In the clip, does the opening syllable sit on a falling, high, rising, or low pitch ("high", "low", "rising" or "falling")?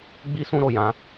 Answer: high